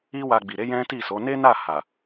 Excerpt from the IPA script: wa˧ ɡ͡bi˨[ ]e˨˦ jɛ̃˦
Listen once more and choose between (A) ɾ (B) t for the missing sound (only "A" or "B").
A